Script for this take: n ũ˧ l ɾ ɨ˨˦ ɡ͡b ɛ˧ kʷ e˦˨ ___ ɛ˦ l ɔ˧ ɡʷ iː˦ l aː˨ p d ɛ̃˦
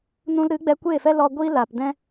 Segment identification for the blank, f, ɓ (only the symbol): f